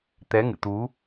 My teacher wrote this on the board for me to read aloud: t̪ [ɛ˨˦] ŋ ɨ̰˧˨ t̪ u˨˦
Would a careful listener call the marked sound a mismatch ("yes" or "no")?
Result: no